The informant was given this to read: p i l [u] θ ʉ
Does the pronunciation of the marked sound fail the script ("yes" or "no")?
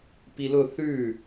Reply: yes